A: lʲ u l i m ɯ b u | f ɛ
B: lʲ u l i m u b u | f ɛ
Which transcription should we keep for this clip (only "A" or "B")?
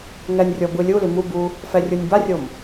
B